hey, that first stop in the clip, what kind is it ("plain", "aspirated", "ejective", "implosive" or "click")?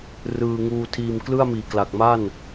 aspirated